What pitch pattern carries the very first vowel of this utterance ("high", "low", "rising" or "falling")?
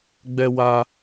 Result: high